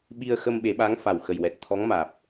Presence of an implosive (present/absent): present